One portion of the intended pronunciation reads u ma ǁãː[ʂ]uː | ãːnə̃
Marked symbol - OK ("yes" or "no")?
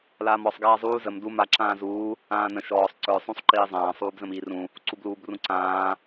no